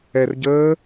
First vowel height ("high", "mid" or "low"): mid